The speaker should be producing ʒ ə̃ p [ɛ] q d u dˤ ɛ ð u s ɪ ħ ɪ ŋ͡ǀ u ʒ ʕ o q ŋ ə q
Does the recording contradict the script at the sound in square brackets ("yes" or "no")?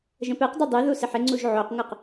no